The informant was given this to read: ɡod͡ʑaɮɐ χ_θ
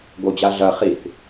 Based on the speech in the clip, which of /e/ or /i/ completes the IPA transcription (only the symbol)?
i